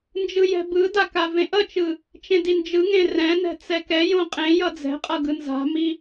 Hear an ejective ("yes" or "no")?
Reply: yes